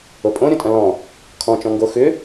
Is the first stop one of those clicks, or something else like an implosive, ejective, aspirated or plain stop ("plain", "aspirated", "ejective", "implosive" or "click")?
ejective